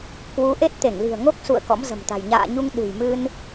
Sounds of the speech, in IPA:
kwu˨˦ʔe˦˥t̚t̪e˧˩ŋ li̤˨˩ə̯ŋo˦˥k̚sṵ˧˨ə̯ kɔ̰˧˥mzə̤˨˩mt̪a̤˨˩j ɲa̰ː˧˨ ɲu˧ŋ ɗɨ̤˨˩jmɨ˧n

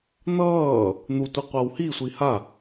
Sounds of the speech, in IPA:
n̪ʌː | n̪utʷi qʷawhisʷi ha

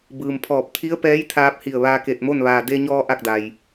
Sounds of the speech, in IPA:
bɯː˩mpʰɔː˧˩p̚ t̪ʰi˧˥ə̯pɛː˧˥jt̪ʰaː˧p̚ hi˧˩ə̯ʋaː˧ke˧˩t̚mo˥˨n ʋaː˩de˧ɲɔː˧ ʔa˥˨k̚da˩j

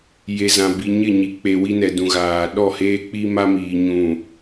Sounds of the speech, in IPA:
je˨zã˨ bi˨ɲɪ˦˨ɲi˨k͡pe˨ wi˦nɛ˨dũ˨ɣaː˨ ɗɔ˦˨heː˦k͡pi˦ma˦ miː˨ɲũ˨

